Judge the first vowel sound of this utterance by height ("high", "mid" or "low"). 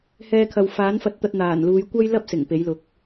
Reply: mid